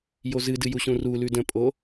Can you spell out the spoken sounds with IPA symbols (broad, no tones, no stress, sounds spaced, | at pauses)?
j o z ɨ d ɨ j u ɕ ũ r u l ʉ d ə̃ pʼ o